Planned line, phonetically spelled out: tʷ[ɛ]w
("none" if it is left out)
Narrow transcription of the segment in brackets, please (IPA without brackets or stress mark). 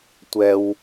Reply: ɛ